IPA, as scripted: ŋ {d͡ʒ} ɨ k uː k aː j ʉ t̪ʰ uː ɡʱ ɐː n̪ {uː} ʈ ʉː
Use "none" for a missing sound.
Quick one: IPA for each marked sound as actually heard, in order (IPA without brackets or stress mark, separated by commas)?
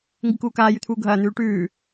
ɡ, ʉː